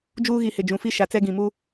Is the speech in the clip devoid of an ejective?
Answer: yes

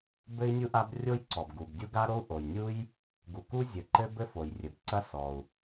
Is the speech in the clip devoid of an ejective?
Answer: yes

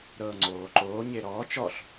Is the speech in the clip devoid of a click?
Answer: no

